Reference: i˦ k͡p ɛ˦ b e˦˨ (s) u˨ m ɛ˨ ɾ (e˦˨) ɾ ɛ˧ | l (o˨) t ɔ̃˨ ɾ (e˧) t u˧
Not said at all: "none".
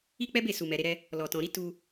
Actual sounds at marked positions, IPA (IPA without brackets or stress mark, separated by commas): s, e˧, ɔ˨, i˧